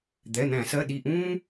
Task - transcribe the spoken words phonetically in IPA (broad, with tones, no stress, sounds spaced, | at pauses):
d̪ ɛ˩˧˩ n̪ æ̃˧˩˧ s ɜ˩˧˩ ɗ i˧˩ ʔ ũː˦